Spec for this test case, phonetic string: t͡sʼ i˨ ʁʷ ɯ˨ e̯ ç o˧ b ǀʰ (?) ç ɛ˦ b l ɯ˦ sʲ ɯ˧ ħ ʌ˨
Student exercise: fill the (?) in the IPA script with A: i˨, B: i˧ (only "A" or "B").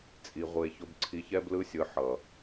B